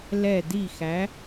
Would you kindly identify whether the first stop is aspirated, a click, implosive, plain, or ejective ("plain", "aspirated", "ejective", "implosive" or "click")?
plain